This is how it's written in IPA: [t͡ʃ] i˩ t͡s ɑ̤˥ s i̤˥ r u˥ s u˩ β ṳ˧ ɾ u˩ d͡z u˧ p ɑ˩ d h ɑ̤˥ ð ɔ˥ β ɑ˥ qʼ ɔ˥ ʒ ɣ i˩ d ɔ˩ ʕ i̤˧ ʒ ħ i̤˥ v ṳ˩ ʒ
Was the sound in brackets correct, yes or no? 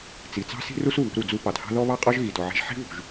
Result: no